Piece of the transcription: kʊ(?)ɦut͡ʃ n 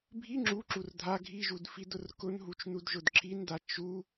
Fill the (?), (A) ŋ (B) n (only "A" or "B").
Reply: B